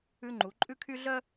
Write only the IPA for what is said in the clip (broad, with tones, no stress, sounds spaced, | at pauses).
ʉ˦ ŋ͡ǃ u˨˦ ǃʼ ʉ˦ kʰ y˦ ɮ œ˦